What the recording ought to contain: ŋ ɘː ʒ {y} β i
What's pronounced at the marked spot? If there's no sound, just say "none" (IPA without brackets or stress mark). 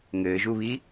u